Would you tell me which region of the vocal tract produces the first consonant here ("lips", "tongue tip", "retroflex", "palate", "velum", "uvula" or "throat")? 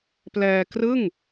lips